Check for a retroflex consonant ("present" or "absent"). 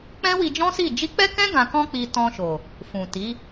absent